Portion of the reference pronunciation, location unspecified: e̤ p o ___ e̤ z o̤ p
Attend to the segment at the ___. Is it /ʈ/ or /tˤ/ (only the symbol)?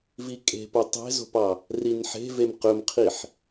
tˤ